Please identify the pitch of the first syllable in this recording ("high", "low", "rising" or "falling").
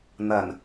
low